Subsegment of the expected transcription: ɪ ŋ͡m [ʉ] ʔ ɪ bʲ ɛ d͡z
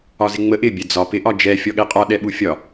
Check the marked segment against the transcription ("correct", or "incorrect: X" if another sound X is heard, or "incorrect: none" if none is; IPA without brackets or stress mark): incorrect: ə